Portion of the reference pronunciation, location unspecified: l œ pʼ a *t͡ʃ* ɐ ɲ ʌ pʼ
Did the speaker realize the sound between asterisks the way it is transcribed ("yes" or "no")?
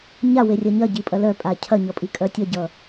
no